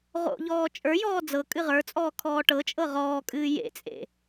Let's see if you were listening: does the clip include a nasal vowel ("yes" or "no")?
no